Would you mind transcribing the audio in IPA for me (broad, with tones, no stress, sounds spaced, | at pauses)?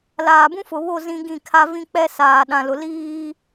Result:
l aː˨ b ũ˦ f ʊ˨ β o˦˨ z ĩ˦ ɡ ĩ˦˨ kʰ a˦ v ĩ˦ k͡p ɛ˦ s aː˨ ɗ ã˨ l ʊ˨ l iː˦